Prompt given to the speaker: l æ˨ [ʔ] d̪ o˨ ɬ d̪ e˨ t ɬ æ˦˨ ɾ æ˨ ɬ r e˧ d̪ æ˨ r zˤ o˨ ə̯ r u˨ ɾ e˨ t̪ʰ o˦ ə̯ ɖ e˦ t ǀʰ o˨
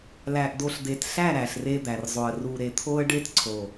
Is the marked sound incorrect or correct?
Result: correct